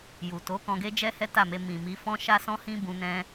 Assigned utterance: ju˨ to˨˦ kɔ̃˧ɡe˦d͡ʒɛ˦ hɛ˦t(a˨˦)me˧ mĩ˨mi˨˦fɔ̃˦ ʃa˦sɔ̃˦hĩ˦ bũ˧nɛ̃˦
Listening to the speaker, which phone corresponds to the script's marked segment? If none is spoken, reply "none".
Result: a˦˨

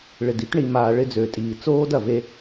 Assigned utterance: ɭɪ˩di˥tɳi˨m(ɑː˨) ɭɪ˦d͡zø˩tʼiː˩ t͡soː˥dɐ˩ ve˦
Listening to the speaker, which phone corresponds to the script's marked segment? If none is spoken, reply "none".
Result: aː˨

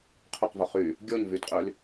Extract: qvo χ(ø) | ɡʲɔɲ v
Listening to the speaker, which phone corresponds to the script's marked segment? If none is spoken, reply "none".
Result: y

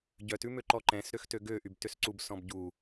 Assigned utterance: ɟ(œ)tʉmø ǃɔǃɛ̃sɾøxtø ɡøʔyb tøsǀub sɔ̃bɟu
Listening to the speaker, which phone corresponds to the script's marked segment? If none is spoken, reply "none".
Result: œ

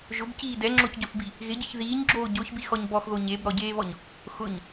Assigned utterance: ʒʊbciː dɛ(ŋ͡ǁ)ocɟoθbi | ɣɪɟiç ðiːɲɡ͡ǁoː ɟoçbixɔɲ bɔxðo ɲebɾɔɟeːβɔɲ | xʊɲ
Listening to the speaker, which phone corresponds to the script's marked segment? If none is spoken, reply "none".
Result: ŋ͡ǁ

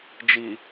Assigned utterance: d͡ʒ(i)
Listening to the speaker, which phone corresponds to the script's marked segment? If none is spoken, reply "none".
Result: i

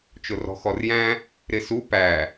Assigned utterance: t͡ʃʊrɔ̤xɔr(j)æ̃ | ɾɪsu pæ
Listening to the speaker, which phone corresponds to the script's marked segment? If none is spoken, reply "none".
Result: j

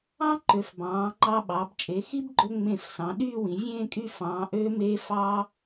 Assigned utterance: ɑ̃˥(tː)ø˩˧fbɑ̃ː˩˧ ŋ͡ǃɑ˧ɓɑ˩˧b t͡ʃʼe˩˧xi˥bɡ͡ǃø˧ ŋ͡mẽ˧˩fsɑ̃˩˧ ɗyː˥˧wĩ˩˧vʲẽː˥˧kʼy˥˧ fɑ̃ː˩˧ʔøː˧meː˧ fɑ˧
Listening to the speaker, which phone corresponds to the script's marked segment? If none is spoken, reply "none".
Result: ǃ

